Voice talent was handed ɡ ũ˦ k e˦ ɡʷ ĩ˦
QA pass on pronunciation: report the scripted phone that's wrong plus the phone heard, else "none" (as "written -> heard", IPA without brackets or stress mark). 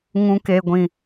ɡ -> ŋ